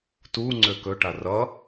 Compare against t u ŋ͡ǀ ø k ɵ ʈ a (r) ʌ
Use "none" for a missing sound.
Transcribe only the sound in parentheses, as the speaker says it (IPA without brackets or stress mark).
r